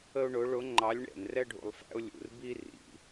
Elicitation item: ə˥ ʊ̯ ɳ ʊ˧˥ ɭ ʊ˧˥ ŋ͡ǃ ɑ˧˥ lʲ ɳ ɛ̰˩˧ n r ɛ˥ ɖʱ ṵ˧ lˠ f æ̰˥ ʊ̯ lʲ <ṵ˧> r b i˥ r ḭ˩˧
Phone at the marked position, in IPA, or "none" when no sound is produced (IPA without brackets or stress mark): ṵ˧